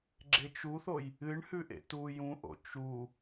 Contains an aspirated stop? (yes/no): no